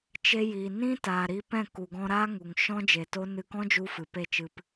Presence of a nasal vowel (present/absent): present